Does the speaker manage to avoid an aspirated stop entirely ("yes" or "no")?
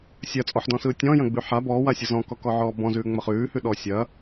yes